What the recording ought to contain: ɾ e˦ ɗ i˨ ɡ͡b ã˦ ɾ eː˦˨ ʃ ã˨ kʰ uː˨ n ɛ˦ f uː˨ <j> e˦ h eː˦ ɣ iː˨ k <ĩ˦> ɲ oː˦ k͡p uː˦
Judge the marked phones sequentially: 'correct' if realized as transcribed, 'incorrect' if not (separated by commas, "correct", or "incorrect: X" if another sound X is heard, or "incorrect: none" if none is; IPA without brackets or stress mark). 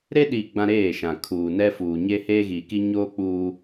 incorrect: ɲ, incorrect: i˦